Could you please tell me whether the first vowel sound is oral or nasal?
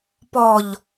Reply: oral